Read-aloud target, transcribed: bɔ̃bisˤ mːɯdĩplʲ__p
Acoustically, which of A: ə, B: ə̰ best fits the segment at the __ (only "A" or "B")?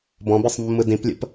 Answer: B